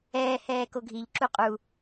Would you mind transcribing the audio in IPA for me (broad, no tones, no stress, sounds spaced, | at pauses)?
ɛː h ɛː k o ɡʱ i ʎ ǁ u qʼ u